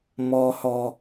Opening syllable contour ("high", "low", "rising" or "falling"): low